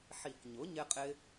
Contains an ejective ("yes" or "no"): yes